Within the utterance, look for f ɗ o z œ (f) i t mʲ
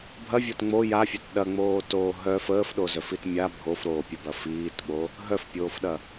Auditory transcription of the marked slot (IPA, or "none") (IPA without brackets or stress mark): f